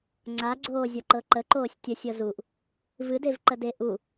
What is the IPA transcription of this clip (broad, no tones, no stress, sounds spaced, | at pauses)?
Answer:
ŋ͡ǀ a ɡ͡ǀ oː zʲ ɔ ǃ ɤ ǃ ə ǃ oː sʲ tʲ ə sʲ ɤ z u ʔ | v ɨ d e v ǃ ə d e ʔ u